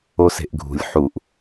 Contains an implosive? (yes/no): no